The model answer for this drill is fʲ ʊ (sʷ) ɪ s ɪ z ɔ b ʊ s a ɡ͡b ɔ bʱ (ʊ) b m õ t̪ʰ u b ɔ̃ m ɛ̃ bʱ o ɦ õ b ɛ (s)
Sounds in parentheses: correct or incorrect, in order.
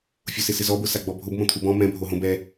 incorrect, correct, incorrect

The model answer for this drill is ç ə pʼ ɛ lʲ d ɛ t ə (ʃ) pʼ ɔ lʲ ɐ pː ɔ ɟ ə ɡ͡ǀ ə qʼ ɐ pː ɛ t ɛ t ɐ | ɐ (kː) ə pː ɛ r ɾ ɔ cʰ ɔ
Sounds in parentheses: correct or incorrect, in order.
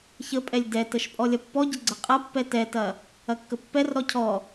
correct, correct

